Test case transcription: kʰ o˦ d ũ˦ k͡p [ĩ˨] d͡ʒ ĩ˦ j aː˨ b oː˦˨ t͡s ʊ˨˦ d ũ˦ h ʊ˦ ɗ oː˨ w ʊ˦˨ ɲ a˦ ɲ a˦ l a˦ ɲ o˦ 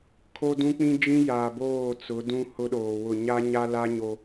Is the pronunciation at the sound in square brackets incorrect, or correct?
incorrect